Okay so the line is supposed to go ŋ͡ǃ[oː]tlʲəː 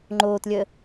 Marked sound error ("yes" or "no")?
no